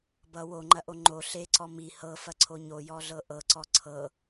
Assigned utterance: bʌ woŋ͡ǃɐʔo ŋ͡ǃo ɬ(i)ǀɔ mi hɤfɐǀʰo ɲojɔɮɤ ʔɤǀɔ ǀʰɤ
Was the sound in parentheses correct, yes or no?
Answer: no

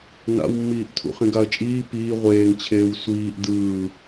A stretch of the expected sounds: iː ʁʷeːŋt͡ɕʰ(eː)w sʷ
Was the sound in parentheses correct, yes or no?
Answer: yes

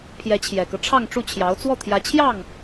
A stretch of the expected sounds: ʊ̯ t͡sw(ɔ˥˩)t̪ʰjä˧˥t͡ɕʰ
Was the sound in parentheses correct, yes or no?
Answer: yes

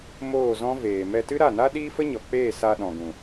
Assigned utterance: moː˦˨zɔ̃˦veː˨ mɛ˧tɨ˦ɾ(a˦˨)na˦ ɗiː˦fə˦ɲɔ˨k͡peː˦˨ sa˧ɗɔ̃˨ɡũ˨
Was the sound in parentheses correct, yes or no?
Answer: yes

